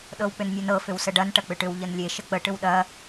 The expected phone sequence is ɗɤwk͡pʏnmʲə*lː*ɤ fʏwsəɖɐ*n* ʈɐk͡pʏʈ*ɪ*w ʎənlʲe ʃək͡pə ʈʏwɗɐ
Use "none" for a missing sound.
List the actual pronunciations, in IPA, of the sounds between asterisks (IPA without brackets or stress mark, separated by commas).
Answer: n, n, ʏ